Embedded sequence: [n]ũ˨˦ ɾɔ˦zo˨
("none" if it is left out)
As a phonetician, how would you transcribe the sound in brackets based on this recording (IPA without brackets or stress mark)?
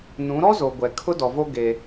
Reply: n